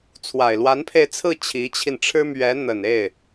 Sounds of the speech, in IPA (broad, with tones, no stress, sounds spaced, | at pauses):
t͡sʰ w a˨˩ ɪ̯ l w a˧˥ n pʰ e˧ ɪ̯ t͡sʰ ɹ̩˥˩ t͡ɕʰ i˧˥ t͡ɕʰ i˧ n ʈ͡ʂʰ ɻ̩˥ m ɥ ɛ˧˥ n̪ ə˨˩ n e˥˩ ɪ̯